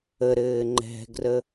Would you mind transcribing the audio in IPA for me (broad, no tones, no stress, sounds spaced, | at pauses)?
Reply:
ə ɾ ɘː ŋ͡ǃ ɛ̤ ɡ r ə